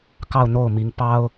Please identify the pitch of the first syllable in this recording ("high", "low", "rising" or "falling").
falling